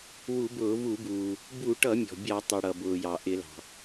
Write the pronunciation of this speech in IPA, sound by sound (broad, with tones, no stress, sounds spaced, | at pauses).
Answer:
w u˧˩˧ b ʊː˧˩˧ v u˧˩˧ b uː˩ | b u˧˩˧ ʈ ʌ˧˩˧ mʲ ɔ̤˩ bʲ ɑ˧˩˧ tˤ i˩ ɽ ʌ˩ b ʊː˩ j ɑ˩ ʔ ɪ˧˩˧ l ɑ̤˩